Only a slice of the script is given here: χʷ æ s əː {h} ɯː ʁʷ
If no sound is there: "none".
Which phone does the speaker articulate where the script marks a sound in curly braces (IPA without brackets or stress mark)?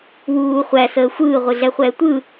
xʷ